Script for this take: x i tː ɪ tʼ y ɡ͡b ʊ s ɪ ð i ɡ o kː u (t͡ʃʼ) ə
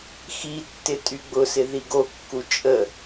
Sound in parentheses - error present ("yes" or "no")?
no